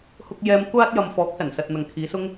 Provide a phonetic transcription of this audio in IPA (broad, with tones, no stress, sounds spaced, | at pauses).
h ʊ˧ k̚ j ɛː˧ m kʷ aː˥ t̚ j ɐ˨ m f ɔː˨˥ k̚ s ɐ˨˩ n s ɐ˨ t̚ n̪ ɐ˨ ŋ kʰ iː˨˧ s ʊ˥ ŋ